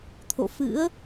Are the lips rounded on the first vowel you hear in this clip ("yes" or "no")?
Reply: yes